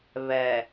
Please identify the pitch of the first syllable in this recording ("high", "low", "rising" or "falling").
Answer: low